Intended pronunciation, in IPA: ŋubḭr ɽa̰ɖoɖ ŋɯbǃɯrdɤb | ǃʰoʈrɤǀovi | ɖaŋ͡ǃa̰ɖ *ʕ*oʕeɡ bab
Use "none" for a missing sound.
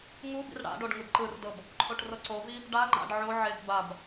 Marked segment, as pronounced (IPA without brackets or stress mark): ʕ